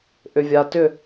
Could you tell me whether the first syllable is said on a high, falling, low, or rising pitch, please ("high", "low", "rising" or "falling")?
low